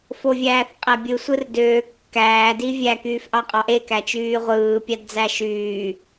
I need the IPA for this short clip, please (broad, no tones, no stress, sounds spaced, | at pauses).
f o vʲ æː θ qʼ æ bʲ ɯ sʷ ɯ r d øː kː æː d i vʲ æ k yː f ʔ ɑ qʼ ɑ ʔ e k æ t͡ʃ yː ʁʷ ɯː pʲ ɑ d d͡z æ ʃ yː